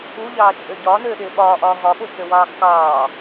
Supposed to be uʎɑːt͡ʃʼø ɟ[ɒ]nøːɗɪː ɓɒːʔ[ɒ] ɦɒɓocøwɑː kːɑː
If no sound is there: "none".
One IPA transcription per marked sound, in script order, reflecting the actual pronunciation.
ɒː, ɒː

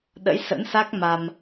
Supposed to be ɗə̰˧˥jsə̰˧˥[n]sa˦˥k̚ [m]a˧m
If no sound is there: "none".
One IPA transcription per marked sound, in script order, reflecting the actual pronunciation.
n, m

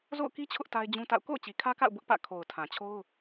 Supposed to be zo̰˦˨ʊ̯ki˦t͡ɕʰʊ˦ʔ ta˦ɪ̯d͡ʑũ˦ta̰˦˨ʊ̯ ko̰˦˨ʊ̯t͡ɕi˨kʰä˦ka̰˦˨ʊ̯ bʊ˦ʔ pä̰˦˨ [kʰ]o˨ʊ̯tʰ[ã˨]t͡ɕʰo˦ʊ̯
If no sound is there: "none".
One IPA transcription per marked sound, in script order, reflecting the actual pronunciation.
kʰ, ã˨

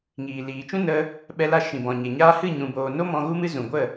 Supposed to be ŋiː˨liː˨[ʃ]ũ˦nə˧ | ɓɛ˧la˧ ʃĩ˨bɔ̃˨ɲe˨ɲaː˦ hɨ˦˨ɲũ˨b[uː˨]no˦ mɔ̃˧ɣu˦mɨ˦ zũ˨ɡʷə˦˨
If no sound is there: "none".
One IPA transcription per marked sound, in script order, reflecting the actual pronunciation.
t͡ʃ, oː˨

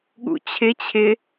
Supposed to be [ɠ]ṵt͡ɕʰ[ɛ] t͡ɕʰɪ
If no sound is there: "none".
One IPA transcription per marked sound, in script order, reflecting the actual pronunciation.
ɠ, ɪ

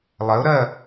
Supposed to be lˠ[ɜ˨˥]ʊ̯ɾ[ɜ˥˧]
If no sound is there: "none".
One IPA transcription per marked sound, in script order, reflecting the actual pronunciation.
ɜ˨˥, ɜ˥˧

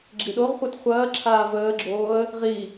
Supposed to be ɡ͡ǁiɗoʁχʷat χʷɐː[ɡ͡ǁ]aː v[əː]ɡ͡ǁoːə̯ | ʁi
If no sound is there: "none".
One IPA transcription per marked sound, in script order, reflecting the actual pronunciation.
ǁʰ, əː

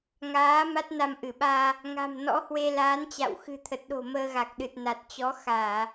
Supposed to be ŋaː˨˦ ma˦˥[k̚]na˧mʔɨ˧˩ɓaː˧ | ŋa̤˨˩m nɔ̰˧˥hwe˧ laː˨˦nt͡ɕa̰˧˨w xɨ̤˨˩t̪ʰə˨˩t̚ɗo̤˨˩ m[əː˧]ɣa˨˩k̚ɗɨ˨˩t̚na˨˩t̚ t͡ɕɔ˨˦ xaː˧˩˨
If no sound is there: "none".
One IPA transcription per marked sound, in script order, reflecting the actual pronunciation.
t̚, əː˧

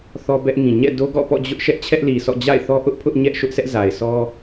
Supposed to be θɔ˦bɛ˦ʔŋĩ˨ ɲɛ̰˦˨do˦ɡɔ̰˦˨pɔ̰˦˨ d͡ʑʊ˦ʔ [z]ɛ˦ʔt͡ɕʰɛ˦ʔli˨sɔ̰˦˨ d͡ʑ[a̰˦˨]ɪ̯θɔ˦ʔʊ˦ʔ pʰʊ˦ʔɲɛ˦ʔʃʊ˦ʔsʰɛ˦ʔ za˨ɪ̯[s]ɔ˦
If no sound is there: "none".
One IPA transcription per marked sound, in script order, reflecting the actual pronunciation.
ʃ, a̰˦˨, s

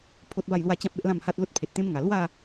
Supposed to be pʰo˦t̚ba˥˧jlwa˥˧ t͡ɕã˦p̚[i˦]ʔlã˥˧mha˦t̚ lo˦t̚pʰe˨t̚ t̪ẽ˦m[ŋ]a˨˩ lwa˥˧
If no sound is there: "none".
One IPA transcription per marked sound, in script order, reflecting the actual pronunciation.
e˦, ŋ

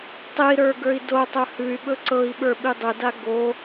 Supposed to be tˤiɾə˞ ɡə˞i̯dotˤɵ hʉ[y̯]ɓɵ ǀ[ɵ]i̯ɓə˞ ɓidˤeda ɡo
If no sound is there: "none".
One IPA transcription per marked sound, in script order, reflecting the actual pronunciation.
y̯, ɤ

